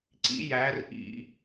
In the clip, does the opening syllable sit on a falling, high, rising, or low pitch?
rising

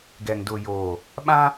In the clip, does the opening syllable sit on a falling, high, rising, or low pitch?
low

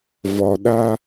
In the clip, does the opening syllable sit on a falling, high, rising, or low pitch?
low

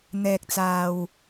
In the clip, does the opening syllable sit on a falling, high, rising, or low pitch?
low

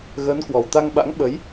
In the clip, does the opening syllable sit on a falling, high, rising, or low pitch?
rising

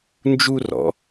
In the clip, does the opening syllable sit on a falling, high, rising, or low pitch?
high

